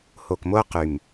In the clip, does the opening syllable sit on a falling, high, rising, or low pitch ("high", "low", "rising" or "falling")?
low